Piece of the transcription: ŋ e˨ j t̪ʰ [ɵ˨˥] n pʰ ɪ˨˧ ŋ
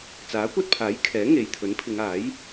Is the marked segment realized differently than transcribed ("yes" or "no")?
no